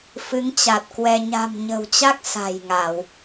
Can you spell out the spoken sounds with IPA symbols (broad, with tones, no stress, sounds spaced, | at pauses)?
f ɨ˨˦ ŋ t͡ɕ a˨˩ t̚ k w ɛ˧ ɲ a̤˨˩ m ɲ ə̤˨˩ w t͡ɕ a˦˥ k̚ s a̤˨˩ j ŋ a˧˩˨ w